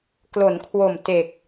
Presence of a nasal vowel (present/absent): absent